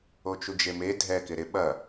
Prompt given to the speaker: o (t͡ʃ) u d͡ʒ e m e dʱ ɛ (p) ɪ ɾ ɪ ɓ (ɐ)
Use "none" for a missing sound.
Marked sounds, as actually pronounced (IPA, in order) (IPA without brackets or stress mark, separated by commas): t͡ʃ, k, ɐ